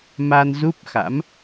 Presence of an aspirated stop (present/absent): absent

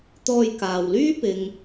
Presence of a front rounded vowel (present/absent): present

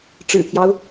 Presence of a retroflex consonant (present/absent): present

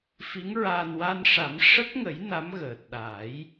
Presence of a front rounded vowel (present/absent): absent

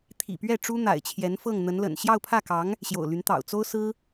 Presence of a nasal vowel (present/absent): absent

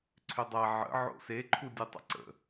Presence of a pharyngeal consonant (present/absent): present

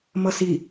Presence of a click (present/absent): absent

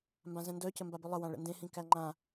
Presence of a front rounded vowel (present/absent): present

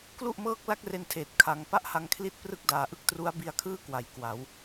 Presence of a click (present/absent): absent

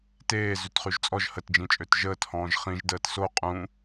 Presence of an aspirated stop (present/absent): absent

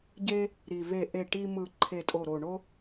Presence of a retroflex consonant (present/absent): present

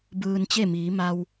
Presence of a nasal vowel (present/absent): absent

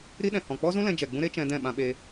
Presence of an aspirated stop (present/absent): absent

